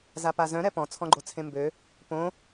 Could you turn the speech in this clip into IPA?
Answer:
z a p a z œ̃ ɾ ɛ p ɔ̃ t͡sʰ ɔ̃ ɡ͡ǃ o t͡sʰ ẽ m b ø | p õ

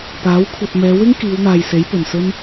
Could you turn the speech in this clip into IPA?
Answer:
p aː˨˥ w kʷʰ ɐ˧ t̚ m ɛː˨˧ w ɪ˥ ŋ k iː˨˧ w n̪ aː˨ j s e˨˥ j p ɵ˨˩ n s ɵ˥ n

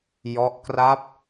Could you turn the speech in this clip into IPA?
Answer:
j ɔ˦˥ ʔ k r a˦˥ p̚

